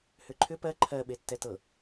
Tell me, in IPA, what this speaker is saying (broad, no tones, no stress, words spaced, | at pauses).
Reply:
hʏǃʰʏ pɜ ǃʰɜ ɓetːɛtɤ